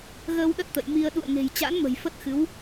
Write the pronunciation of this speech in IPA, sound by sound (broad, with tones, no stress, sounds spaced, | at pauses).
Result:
ɣ əː˧ w ɗ ə˦˥ t̚ t̪ ə̰˧˨ j m i˧ ə̯ ɗ ṵ˧˨ ə̯ ŋ e̤˨˩ j t͡ɕ a̰˧˥ n m ə̤˨˩ j f ə˦˥ t̚ x ɨ˨˦ w